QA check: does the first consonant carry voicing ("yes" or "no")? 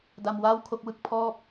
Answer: yes